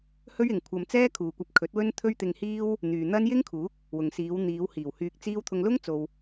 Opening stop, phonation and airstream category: aspirated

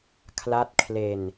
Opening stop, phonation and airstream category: aspirated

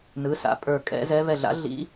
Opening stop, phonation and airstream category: ejective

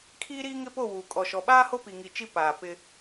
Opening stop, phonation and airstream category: aspirated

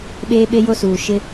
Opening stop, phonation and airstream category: implosive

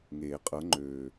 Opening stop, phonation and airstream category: ejective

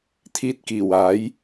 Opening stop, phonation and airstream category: aspirated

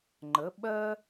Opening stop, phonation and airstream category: click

